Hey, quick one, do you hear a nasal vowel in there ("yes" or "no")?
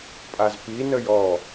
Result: no